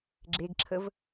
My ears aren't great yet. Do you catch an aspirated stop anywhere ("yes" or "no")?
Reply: yes